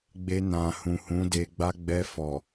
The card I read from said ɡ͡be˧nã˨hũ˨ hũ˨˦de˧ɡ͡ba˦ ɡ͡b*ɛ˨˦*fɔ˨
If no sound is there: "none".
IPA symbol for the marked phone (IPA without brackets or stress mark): ɛ˧